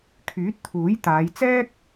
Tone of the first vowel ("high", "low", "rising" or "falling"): rising